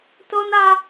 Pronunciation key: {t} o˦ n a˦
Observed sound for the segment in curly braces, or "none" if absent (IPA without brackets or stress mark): t